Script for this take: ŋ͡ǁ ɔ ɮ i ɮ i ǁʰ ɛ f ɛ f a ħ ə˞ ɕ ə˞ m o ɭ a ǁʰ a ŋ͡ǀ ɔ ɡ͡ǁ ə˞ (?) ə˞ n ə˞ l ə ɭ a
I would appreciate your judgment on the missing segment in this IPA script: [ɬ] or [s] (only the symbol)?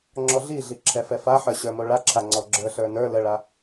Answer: ɬ